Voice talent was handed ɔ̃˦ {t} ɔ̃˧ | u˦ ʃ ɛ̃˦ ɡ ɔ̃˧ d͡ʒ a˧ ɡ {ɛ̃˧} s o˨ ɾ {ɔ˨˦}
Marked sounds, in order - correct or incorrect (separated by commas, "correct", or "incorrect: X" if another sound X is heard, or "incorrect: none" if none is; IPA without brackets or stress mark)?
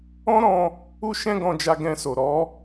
incorrect: ɾ, correct, correct